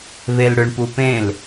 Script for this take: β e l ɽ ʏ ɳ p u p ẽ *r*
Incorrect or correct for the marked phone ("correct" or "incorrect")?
incorrect